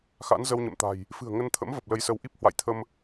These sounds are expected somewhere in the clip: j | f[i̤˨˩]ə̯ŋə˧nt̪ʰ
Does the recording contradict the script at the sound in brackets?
yes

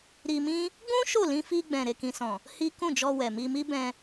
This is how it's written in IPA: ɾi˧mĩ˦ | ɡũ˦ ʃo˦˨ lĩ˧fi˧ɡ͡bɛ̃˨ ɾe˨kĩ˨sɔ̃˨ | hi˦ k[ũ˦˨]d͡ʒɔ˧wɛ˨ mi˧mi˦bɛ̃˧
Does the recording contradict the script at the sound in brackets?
no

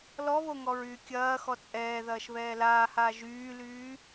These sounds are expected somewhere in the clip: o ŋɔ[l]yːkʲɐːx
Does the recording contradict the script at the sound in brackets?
yes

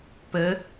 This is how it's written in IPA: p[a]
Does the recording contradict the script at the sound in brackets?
yes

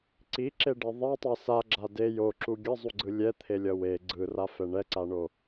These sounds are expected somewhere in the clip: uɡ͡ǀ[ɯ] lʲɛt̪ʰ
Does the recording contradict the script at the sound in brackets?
no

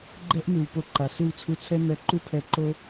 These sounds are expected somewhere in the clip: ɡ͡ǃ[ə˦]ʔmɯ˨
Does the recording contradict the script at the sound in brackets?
yes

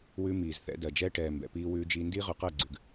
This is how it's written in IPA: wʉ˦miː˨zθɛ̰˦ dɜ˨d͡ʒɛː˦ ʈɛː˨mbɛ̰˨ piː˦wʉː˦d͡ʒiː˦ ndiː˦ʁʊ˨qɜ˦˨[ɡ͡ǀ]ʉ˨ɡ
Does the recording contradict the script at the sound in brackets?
no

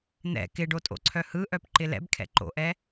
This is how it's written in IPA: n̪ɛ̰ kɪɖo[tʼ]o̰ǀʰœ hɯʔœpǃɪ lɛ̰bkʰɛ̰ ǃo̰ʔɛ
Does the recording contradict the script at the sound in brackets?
no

